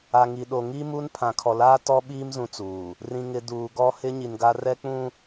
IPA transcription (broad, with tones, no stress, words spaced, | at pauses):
a˨ ŋi˨ɗo˨ ŋi˦mu˦npʰã˨ kʰɔ˨laː˦tɔ˦ɓiː˦m zũ˦t͡suː˨ | rĩ˨ŋɪ˨ duː˨ɡɔ˦ hɪ˦ɲi˨nɡa˦ rɛ˦k͡pũ˦